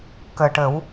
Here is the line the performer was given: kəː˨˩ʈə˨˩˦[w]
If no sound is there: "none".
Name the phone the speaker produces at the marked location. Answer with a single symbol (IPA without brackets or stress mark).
w